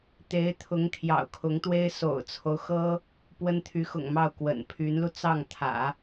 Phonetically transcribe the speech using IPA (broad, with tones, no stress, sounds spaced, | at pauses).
t̪ e˧˥ ɪ̯ t̪ʰ ʊ˧˥ ŋ t̪ʰ j ɑ̰˨˩ ʊ̯ kʰ ʊ˧˥ ŋ t̪ w e˥ ɪ̯ s o̰˨˩ ʊ̯ t͡sʰ o˦ ʊ̯ x ɤ˥ | p w ə˥ n t̪ʰ y˧˥ x ʊ̰˨˩ ŋ m ɑ˥˩ ʊ̯ k w ə̰˨˩ n pʰ y˧˥ n l u˧ t͡s ɑ˥˩ ŋ t̪ʰ ä̰˨˩˦